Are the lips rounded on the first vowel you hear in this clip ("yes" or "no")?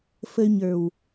no